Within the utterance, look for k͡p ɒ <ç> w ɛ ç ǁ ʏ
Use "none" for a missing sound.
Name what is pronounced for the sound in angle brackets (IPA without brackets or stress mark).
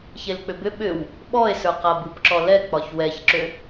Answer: ç